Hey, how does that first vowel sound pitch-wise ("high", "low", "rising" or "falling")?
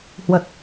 low